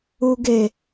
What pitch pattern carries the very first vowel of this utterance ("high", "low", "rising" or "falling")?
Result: high